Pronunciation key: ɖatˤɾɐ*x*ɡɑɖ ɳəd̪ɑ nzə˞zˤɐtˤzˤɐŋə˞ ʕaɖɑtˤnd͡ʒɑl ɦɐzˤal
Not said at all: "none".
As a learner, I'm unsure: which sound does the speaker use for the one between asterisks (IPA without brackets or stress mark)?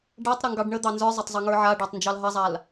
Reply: ŋ